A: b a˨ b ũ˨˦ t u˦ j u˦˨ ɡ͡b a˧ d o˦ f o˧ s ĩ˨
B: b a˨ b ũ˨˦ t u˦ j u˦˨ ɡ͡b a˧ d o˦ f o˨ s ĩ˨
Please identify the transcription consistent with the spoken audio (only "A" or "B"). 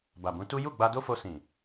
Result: A